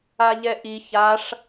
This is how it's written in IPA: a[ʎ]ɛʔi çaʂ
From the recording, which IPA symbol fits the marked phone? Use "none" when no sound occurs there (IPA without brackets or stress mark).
ʎ